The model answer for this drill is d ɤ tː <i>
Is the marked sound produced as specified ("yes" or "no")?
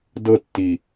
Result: yes